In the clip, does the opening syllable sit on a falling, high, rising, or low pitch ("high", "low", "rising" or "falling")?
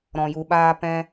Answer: low